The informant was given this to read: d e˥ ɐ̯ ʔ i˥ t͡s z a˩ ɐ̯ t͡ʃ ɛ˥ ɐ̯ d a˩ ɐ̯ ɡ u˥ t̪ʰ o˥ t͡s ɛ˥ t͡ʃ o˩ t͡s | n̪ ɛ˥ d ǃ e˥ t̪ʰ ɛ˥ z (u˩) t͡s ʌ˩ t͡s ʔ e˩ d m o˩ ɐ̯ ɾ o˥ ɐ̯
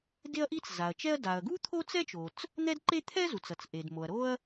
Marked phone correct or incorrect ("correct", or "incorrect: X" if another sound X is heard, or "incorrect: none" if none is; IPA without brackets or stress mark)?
correct